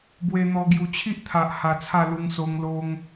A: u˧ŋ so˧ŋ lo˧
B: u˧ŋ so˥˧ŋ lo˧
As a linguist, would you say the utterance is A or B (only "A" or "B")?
A